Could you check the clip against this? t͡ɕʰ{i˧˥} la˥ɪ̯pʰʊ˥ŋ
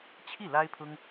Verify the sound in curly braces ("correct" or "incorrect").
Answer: incorrect